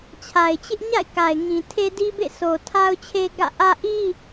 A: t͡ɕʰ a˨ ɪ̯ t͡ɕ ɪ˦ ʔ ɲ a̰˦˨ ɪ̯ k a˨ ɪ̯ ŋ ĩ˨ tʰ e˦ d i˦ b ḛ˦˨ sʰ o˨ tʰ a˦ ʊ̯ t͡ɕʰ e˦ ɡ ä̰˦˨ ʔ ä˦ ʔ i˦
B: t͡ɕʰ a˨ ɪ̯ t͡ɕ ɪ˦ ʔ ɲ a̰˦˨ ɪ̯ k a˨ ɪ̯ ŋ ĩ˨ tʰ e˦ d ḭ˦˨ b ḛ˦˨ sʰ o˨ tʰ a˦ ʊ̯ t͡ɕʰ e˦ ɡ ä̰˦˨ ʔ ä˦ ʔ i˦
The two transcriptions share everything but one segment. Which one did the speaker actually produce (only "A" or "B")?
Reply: A